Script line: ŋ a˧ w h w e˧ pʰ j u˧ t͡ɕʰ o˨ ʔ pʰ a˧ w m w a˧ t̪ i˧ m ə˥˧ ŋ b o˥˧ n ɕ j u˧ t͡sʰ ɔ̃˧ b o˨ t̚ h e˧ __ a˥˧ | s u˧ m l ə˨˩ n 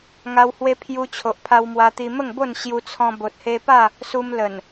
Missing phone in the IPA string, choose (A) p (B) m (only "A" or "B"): A